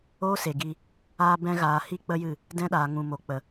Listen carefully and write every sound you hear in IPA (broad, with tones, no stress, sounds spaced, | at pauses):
oː˦ s e˨ ɡ i˧ | aː˧ b ɛ̃˧ ɣ aː˨ h i˦ k͡p ə˦ j ɨ˦˨ | d ɛ̃˧ ɗ aː˨ ŋ ũ˨ m o˨ k͡p ə˨